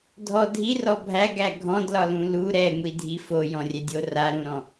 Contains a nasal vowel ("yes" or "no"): yes